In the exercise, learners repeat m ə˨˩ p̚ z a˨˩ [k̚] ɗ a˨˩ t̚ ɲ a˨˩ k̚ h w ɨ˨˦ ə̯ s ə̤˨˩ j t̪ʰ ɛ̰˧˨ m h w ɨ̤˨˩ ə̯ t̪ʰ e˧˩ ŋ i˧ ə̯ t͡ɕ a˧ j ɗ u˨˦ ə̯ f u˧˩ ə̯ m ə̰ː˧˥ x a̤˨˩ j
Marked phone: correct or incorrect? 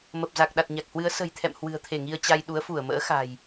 correct